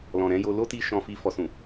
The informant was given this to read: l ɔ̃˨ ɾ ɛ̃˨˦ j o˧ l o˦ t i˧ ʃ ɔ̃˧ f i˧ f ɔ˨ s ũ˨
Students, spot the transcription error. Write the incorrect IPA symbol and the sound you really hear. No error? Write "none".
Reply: none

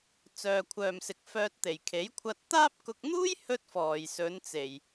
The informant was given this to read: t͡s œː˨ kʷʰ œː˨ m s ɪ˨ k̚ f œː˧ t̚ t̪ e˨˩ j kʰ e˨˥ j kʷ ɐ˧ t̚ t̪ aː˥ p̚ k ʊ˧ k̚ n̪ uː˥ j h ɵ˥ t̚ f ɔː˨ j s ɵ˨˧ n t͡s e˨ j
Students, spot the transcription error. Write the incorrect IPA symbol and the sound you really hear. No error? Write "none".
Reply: kʷ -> kʷʰ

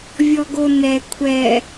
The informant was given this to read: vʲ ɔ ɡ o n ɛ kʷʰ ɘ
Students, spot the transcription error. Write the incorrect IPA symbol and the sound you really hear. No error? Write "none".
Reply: ɘ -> ɛ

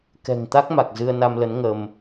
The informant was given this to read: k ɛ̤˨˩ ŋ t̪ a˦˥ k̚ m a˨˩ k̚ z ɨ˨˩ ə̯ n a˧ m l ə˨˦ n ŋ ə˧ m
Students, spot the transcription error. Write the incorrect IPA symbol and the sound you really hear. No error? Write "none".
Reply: ɨ˨˩ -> ɨ˧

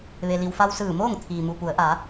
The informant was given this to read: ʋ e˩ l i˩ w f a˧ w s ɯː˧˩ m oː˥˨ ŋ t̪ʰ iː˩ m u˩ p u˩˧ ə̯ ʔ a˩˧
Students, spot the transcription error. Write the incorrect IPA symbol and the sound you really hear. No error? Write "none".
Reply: none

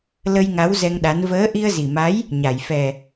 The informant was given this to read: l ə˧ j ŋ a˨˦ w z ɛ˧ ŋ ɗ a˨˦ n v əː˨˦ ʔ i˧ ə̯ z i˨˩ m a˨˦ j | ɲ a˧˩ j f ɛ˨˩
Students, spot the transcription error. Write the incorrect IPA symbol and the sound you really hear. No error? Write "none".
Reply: none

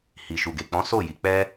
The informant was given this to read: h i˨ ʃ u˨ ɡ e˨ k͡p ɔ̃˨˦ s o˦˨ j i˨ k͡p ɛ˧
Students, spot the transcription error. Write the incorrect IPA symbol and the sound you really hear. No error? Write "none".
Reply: none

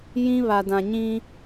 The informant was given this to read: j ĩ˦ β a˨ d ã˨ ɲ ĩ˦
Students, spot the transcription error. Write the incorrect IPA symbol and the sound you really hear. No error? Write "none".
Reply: none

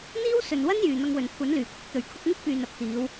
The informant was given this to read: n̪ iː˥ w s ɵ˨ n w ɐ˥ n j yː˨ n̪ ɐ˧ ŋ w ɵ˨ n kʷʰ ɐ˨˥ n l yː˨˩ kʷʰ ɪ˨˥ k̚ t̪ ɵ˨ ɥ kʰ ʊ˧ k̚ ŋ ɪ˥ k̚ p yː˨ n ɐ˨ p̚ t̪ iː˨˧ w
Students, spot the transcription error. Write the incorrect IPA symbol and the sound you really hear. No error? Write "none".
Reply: none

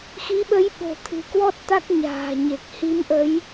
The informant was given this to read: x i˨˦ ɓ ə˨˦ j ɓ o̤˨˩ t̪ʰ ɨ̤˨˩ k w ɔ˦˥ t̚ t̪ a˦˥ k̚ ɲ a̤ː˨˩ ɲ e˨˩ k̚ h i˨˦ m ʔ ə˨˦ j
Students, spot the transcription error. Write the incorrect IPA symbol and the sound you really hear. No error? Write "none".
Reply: none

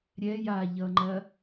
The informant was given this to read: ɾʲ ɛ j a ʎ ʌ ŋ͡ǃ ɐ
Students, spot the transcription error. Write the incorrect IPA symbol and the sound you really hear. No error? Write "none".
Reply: none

